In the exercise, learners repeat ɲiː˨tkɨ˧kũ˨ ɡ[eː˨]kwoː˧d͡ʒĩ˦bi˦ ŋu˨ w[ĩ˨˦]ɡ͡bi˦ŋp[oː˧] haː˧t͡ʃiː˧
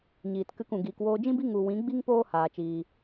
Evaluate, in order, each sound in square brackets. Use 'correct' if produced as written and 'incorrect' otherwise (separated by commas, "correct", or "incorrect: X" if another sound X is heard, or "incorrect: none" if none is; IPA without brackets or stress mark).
incorrect: iː˨, correct, incorrect: oː˦